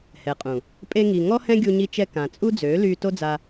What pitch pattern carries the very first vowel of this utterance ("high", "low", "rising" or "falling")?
low